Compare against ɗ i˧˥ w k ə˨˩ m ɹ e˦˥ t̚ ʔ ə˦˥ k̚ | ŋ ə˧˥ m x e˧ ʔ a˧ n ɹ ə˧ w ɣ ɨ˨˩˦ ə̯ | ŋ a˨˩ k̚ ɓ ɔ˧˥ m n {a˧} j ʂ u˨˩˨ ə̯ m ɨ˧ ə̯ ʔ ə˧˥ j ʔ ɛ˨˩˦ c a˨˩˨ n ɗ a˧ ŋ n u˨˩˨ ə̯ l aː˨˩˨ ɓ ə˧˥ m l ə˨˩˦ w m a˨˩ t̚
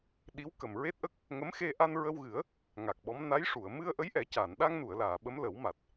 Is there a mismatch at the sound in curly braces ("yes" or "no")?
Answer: yes